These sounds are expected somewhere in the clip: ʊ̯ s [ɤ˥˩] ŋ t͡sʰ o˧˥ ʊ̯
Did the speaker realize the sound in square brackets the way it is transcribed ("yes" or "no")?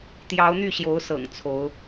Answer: no